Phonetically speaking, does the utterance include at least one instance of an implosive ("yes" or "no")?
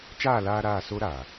no